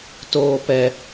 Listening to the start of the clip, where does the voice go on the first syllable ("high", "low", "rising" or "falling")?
high